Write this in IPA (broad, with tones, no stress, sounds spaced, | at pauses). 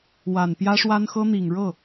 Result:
w a˨˩ n p j ä˥ ʂ w a˥ n x ɤ˥ n̪ i˨˩ ŋ ɻ ɤ˥˩